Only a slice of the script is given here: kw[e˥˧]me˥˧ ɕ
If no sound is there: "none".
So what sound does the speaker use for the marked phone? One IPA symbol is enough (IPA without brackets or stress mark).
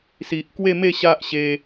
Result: e˥˧